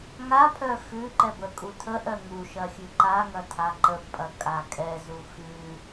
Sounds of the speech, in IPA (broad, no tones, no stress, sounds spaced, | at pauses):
ŋ a pʰ œ x ʉ ǃ ɛ b ə kʼ u tʰ ə ʔ œ ŋ u ʃ ɐ xʲ ʉ ǃ a ŋ ɐ tʰ a ǃ ə b pʼ ɐ kʼ a kʼ ɛ z u x ʉ